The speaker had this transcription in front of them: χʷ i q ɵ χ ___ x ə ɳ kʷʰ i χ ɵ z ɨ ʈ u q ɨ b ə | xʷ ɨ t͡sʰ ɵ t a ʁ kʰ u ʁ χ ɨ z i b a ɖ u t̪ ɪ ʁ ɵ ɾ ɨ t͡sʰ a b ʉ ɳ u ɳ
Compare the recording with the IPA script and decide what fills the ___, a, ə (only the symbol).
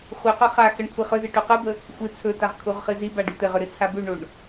a